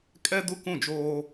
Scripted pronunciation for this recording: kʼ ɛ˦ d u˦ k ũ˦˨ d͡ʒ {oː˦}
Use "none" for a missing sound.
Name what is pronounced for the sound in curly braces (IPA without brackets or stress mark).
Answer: oː˦